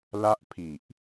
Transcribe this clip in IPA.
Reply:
l a˦˥ ʔ pʰ i˨˩ ʔ

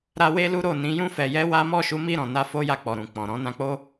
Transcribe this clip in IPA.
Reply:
ɾ a˦ w e˦ l u˦ ɾ o˦˨ n ĩ˨˦ j ũ˦ f ɛ˧ j ɛ˦ w a˦ m ɔ˦˨ ʃ u˨˦ m i˦˨ ɾ ɔ̃˨ n a˧ f o˦ j a˦˨ k͡p ɔ˨ ɾ ũ˨ k͡p ɔ̃˨ ɾ ɔ̃˨˦ n ã˧ k͡p o˦

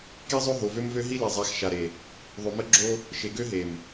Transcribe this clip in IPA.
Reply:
k i˦ zˤ ø˦ ɦ o˨ v ø˦ m v ø˦ ɦ i˦ l e˨ zˤ a˨˦ x ʃ a˨ ɾ e˨ | ðˤ ø˨ m ə˦ ɡ͡ǁ o˦ | ʃ e˨ ɡ ø˦ ɦ e˨ m

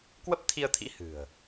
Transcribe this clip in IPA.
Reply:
k w ə˦˥ p̚ t̪ʰ i˧ ə̯ t̪ʰ ḭ˧˥ h ɨ̤˨˩ ə̯

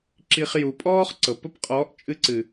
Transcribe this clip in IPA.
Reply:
ǁ i˧ χ j u˨ pʼ ɔː˦ χ ǀ ɤ˨ p ə˦ p qʼ ɔː˨˦ ʔ t͡ʃʼ ɨ˧ ǀ ɨ˨

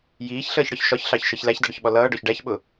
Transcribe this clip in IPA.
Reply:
j iː ç ɬ əː ç ɽ ɒ ç ʃ ɒ ç ɬ ɑ ç ʃ ʌ ç l æ ç d ʌ ɽ ʊ ç ɓ ɔ l ʌː ɖ ɔ ç ɖ æ ç ɓ ʊ

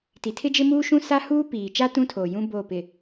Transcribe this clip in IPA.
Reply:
t i˨ tʰ ɪ˦ d͡ʒ ɪ˦ m uː˦ ʃ ũ˦ s a˦ h uː˦ p iː˨ t͡ʃ a˦ t ũ˦ tʰ oː˨ j ũ˦ b o˦˨ p ɪ˨

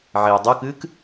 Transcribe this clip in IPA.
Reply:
ʕ e o̯ dˤ o k ɨː k

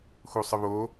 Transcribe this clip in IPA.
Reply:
x u sˤ ɨ β o

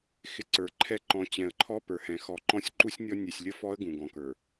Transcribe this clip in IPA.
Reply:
x ɪ˨ ǀ ə˞˨ ǃʰ ɛ˦ ǃ ɔ̃˨˦ t͡ɕ ɛ̃˨ ə̯ ǃʰ ɔ˦ p ə˞˨ h ɛ̃˨ x ɔ˨ ǃ ɔ̃˦ sʲ ǃ u˦ sʲ nʲ ɔ˦ nʲ ɛ˨ sʲ lʲ ə˦ f ɔ˦ ə̯ ɡ ũ˨ ɡ ɔ̃˨ k ə˞˨

